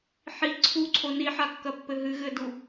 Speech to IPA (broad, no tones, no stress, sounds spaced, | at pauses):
ħ i ǀʰ u ǀʰ o n i ħ a kː ɐ pː ɘ ɦ ɨ ɣ ɘ d u